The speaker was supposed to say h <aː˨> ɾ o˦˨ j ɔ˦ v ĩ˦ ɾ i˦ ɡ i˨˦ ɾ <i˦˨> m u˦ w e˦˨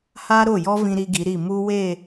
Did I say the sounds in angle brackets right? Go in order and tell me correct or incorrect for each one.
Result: incorrect: aː˦, correct

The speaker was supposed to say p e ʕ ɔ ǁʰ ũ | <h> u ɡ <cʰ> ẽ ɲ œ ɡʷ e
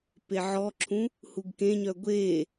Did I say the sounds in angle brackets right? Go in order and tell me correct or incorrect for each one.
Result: correct, incorrect: k

